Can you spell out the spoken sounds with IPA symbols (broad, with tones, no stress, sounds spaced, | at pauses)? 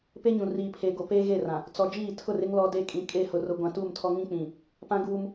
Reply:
p e˦ ɲ ũ˨ r iː˨ pʰ eː˨ ɡ o˨ p eː˦ ɣ e˦˨ r ã˨ | t͡s ɔ˨ d͡ʒ iː˦˨ tʰ ʊ˦˨ r ɪ˦ ŋ l ɔ˦ d e˦ kʼ ĩ˨ kʼ e˦˨ h ʊ˨ r ʊ˨ ɡʷ ã˨ t uː˦˨ m tʰ ɔ˦ ŋ ĩ˦ k͡p ĩ˨ | p ã˦ ɡ uː˦ m